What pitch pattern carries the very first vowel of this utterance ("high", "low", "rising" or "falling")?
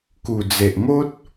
low